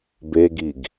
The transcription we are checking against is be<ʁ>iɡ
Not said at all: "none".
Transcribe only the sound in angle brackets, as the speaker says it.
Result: ɡ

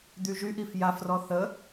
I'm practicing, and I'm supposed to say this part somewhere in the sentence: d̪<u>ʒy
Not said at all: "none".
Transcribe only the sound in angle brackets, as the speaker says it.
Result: y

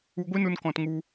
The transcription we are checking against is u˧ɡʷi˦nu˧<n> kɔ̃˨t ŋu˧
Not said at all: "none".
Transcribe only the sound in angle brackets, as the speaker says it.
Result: n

